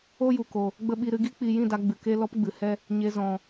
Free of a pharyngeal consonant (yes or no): yes